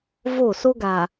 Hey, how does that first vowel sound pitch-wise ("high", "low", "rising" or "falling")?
falling